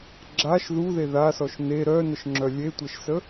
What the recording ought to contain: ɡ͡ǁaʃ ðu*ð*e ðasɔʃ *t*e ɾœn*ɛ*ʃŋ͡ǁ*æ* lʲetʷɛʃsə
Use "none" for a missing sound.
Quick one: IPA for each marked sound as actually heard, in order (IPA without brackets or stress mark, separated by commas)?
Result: ð, n, ə, œ